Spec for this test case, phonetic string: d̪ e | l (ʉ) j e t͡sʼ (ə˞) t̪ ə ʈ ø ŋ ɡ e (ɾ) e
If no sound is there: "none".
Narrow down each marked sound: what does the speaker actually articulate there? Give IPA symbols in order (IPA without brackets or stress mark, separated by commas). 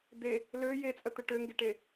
ø, ə, ʈ